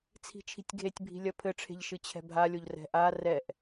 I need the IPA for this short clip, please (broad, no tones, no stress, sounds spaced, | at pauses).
t͡sʰ i̤ t͡ʃʰ i̤ tʲ ɡʱ e tʲ bʱ i̤ lʲ ɐ pʰ ɘ ʈ͡ʂʰ e̤ ʎ ʃ ɨ t͡ɕʰ ɛ̤ bʱ a lʲ o ʎ r ɛ̤ ʔ a r ɛ ʔ